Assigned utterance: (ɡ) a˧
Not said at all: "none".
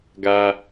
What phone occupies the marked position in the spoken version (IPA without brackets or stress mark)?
ɡ